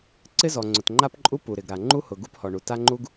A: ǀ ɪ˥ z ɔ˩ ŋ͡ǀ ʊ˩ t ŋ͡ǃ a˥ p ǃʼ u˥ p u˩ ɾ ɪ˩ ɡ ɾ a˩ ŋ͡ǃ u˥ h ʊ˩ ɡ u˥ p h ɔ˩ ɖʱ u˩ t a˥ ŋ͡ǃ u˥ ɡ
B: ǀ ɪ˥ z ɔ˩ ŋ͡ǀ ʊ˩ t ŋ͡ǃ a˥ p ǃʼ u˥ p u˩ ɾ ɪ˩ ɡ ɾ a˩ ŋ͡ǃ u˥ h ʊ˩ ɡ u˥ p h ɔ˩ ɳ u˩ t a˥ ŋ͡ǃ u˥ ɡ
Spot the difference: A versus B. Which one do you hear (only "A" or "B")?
B